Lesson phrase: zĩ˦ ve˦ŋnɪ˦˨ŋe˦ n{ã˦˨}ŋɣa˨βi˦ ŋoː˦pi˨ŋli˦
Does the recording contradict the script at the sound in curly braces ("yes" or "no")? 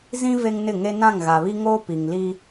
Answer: no